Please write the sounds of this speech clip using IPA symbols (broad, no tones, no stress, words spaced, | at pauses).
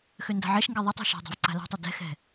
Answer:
xønda̤ʕɛʃŋɡɛ ðˤøtˤo̤ ʃa̤dˤa̤v ǀa̤la̤tˤɛ dɛ̤xɛ̤